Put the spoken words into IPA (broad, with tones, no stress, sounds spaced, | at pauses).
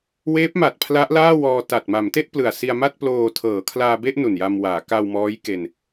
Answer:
w eː˦˥ p̚ m a˨˩ t̚ pʰ l a˦˥ ʔ l aː˥˩ w ɔː˧ t a˨˩ t̚ m a˩˦ m t e˥˩ ʔ p l ɯ˨˩ a̯ s i˧ a̯ m a˥˩ t̚ p l oː˧ tʰ ɤː˩˦ kʰ l aː˧ b e˥˩ ʔ n u˨˩ n j a˧ m w aː˩˦ k a˧ w m ɔː˦˥ j k e˧ n